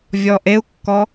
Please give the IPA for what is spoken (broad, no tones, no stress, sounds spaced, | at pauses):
vʲ ɔ ʔ e u̯ kː ɔ